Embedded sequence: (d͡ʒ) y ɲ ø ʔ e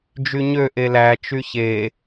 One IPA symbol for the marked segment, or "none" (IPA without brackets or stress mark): d͡ʒ